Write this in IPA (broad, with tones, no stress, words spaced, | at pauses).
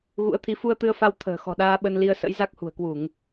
ɣṵ˧˥ə̯t̪ʰi˨˦ fu˧ə̯t̪ɨ˧ə̯fa˧w t̪ʰə̤ː˨˩ xɔ̤˨˩ɗaː˧ ɓə˧nli˧ə̯ sə̰˧˥jza˦˥k̚ hṳ˨˩ə̯kwu˧˩˨ŋ